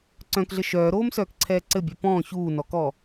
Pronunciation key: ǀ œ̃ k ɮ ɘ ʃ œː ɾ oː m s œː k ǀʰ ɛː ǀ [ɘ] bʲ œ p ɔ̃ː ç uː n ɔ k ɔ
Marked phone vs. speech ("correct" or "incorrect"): correct